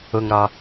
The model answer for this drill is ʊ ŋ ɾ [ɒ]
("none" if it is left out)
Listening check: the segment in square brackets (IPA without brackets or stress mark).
ɒ